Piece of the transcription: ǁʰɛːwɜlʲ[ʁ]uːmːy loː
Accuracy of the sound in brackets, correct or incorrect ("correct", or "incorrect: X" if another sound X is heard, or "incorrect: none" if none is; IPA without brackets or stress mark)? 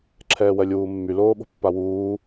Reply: incorrect: w